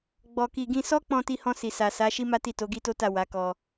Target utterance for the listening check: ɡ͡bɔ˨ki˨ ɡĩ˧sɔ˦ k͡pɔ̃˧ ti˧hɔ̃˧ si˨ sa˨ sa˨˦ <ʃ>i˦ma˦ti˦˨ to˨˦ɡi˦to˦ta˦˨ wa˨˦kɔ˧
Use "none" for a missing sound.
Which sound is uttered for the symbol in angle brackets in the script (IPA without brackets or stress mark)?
ʃ